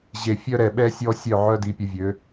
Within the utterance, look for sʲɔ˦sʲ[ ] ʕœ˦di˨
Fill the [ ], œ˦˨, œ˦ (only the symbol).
œ˦˨